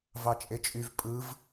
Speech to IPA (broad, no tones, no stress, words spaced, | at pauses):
vɑt͡ʃʼet͡ʃʼyv pʼɯv